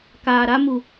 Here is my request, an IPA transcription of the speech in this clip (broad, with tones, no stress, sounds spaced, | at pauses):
k aː˨ ɾ a˦ m u˨